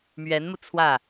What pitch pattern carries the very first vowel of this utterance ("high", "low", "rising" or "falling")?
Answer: rising